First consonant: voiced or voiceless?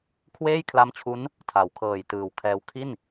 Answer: voiceless